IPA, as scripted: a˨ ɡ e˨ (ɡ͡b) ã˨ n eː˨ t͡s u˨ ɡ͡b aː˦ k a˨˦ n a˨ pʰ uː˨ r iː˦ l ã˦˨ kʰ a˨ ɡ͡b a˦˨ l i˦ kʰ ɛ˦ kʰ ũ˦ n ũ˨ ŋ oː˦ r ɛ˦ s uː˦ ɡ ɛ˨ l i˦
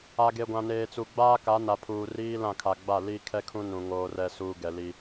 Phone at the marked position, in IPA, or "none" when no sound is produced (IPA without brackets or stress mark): ɡʷ